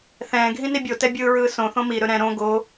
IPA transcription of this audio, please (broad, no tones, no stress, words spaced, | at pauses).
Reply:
θɛ̃ːɡʱĩ nibʲotɛ bʲɯːɹɯːsõθõ miɾɵ ɾɛ̃ ɾõ ɡo